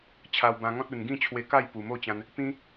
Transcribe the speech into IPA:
t͡ɕʰa˧wbã˧ŋɔ̃˦t̚ u˨˩nɡĩ˥˧ t͡ɕʰwe˧ka˥˧j pu˨˩mo˥˧t͡ɕã˧n | pĩ˦

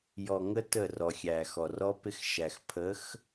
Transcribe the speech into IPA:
jɔ˨ŋə˦ tə˦˨rɔ˨xʲæ˨ xɔ˨rɔ˦pɪ˦xʃæ˨x pʰə˨˦x

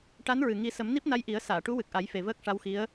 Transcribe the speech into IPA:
ʈa˧˥nɹɨ˨˩ ŋi˨˩˦sə˨˩˦m ni˦˥p̚na˧jʔi˨˩˦ə̯ saː˨˩˨ʈu˧˥wɨ˨˩k̚ʔa˨˩˦j fe˨˩vəː˦˥k̚ʂa˧˥wxi˧˥ə̯

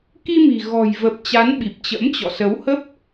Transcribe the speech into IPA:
ki˧mi̤˨˩ɣɔ̤˨˩jvə˨˩p̚ t͡ɕa˨˦nɓi˨˩p̚t͡ɕə̰˧˥mt͡ɕɔ̰˧˨ sə˨˦whə˦˥p̚

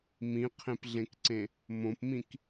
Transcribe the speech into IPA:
mĩqʰẽpɮẽkǀẽ | mõpmĩk

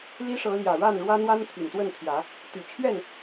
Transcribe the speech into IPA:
li˦ʂɤ˨˦ ljä˨˩ɻa˥˨nɻwä˦ n̪wa˦nt̪ʰi˨˩nt̪wə˥˨nt̪ʰjä˨˦ | t̪y˨˩t͡ɕʰɥɛ˥˨n

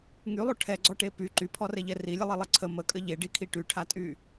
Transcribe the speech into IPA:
ŋylˠo ʈʰɛɡ͡ǀɔʈe py ǃypʰɔrɛʎɛ rilʲəlˠelˠe ǀʰə məkʼə ʎeɖikʰi ʈyʈʰatʼy

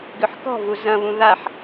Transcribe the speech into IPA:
ɡʏħkɔ̤vu zɐ̃βũ ðaħ

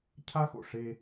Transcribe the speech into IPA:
cʰa˦xo̰˨ʂe˦

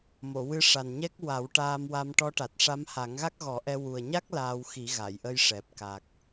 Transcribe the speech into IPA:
mo˨˩˨wɨ˧ʂa˨˩nɲɛ˦˥k̚ wa˨˩˦w ʈaː˧mwa˧m ʈɔ˧˥ʈa˨˩t̚ʂa˧˥m ha˨˩˦ŋɣa˦˥k̚ɣɔ˨˩˦ʔɛ˧ wu˨˩ə̯ɲa˦˥k̚ laː˧wxi˨˩˦ɣa˨˩˨jʔə˧j ʂɛ˨˩p̚ka˨˩k̚

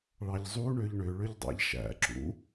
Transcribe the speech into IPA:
ɭɑʎzˤu ɳøʎɳø ɭøʎdˤɑ̰ʎʃæ̰ ǁṵ

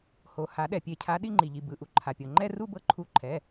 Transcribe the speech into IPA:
ho˩ ha˨˩˦ɗɛ˩pʲe˨˩˦cʰa˨˥ ɗi˥˧ŋ͡ǃi˩ʎi˩ bɯ˩˧˩ʔu˩ ǃʰa˩pʲɤ˩ŋ͡ǃɛ˥˧ ru˥˧bɤ˧˩ǃʰu˨˩˦ ǃʰɛ˩˧˩

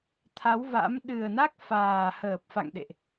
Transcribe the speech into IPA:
t̪ʰa˨˦wva̰˧˥m ɗɨ˨˩ə̯na˦˥k̚faː˨˩ həː˨˩p̚fa̰˧˨ŋɗḛ˧˨ʔ

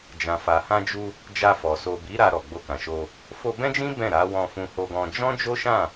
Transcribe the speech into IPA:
d͡ʒã˨fa˨ hã˧ d͡ʒu˧ | d͡ʒa˧fɔ˨ so˨bi˨˦ ɾa˧ ɾɔ˨ɡ͡bo˧kã˨ʃo˧ | fo˧bɛ̃˦d͡ʒĩ˦ bɛ̃˦˨ɾa˨˦ wɔ̃˧fũ˧ho˧ɡɔ̃˧ d͡ʒɔ̃˦d͡ʒo˦ʃã˦˨

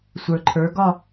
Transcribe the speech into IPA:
sʷə˞˩ǃʰə˞˩˥ ɡɒ˥˧

